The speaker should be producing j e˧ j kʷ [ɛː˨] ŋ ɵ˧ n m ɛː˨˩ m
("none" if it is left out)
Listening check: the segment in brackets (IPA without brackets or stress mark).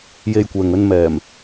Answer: ɛː˨